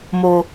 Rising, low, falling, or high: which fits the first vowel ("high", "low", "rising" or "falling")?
low